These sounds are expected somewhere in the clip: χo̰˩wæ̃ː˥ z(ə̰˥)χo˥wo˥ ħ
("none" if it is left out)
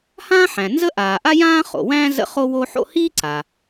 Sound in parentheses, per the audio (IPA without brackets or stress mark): ə̰˥